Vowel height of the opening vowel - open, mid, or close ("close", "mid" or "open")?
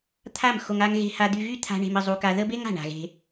open